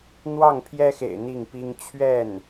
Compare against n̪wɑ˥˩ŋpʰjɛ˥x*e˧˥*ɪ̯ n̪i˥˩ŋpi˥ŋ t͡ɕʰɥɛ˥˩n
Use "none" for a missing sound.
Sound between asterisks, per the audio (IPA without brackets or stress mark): ḛ˨˩